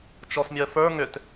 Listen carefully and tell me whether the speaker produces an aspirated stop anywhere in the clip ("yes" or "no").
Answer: no